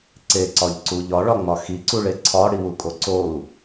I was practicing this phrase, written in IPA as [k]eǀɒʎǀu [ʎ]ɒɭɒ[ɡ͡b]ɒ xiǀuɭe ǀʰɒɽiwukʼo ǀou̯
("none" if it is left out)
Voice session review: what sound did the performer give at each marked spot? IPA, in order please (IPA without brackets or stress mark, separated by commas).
ǀ, ʎ, ŋ͡m